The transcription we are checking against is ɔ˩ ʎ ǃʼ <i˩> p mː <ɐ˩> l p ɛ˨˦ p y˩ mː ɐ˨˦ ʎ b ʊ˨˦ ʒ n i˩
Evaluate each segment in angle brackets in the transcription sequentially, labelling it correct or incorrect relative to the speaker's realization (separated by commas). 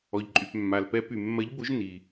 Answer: incorrect, incorrect